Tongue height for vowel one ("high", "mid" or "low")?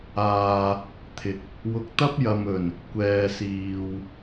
low